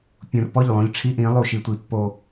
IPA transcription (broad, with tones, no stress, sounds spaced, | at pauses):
pʲ ũ˨ r p ɔ˦˨ ʎ lˠ õ˦ ʎ ʈ͡ʂʰ i˦ ʔ ĩ˨˦ lˠ u˨ ʃ i˨ tʷ i˨ pː o˨